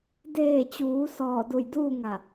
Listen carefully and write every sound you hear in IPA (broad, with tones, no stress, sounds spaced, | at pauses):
d eː˧˩ t͡ɕ uː˩˧ s ɔː˧˩ d u˧˩ j d uː˥˨ ŋ a˧˩